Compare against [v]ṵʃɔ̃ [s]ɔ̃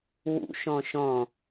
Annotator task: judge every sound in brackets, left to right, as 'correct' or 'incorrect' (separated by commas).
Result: incorrect, incorrect